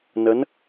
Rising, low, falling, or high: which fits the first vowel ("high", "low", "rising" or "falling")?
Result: rising